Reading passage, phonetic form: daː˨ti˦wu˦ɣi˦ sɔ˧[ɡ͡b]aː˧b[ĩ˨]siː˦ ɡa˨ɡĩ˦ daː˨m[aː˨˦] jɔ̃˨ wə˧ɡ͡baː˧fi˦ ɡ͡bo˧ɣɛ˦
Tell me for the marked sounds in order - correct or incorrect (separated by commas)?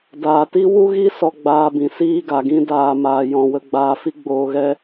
correct, correct, incorrect